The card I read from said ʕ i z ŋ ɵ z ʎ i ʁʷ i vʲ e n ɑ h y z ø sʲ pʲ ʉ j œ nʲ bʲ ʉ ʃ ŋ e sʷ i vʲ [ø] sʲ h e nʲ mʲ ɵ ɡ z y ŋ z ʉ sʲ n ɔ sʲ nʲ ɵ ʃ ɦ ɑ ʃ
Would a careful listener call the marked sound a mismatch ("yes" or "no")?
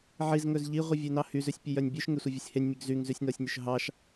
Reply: no